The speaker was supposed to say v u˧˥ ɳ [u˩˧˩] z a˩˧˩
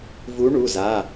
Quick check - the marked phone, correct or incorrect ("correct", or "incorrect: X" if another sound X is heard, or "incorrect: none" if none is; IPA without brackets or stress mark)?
correct